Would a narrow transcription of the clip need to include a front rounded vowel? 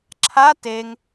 no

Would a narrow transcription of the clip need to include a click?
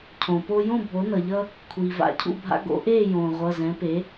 no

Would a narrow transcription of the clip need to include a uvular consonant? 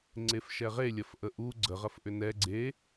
yes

